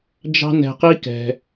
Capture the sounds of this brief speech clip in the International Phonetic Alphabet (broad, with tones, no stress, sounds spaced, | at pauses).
d͡ʒ ɑ̤˦ n ɛ̤˧ q i˦ k ɛ̤˧